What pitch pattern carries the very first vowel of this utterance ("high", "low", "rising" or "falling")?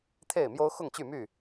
falling